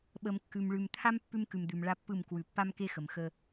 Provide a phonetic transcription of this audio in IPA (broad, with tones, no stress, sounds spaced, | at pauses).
ɓ ə˨ m kː ʉ˨ m ɭ ʉ˨ m t̪ʰ a˦ m pː ʉ˦ m k ʉ˨ m d̪ ʉ˨ m ɭ a˦ pː ɯ˦˨ m k w ʉ˨ pː a˦ m k e˦ x ə˨ m x ə˦